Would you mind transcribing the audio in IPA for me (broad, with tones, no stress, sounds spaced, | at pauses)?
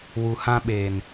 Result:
w u˨ h ã˧ ɓ eː˨ n